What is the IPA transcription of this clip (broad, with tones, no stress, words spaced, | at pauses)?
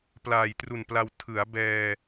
plaː˨˩jtru˨˩npla˧w tʰɯ˩˦a̯ bɛː˧